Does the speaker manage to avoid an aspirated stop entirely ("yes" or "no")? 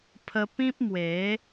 no